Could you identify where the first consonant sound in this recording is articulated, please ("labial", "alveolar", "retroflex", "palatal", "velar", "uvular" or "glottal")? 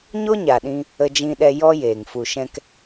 palatal